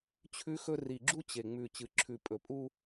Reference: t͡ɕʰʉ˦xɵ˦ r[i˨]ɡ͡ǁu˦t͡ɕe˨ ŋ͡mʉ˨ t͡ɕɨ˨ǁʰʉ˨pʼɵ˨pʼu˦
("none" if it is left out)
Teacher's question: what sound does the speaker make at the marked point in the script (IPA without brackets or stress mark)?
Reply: i˨